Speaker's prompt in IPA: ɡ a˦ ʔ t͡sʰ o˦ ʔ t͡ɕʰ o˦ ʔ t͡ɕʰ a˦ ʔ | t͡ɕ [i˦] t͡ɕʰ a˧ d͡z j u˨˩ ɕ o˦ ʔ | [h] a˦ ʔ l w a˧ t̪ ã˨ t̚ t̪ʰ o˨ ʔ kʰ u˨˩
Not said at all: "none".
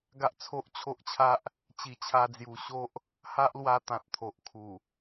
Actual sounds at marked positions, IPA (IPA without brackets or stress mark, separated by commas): i˨˩, h